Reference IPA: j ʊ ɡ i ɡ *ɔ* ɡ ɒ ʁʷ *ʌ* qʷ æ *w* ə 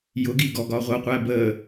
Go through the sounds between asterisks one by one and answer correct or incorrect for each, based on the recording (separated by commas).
correct, correct, incorrect